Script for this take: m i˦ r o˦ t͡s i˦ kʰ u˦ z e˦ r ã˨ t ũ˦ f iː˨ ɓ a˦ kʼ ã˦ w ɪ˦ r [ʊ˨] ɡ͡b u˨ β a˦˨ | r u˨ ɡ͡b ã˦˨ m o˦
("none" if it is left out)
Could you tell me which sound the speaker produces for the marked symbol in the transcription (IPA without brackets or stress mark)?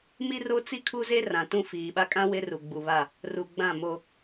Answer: u˨